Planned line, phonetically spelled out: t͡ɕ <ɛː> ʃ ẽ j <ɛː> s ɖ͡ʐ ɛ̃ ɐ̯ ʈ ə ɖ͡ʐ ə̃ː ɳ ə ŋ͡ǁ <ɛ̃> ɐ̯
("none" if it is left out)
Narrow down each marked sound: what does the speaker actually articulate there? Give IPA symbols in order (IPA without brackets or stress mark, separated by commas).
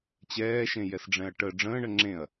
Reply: ɛː, ɛ, ẽ